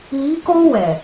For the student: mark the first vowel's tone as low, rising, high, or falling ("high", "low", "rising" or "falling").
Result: rising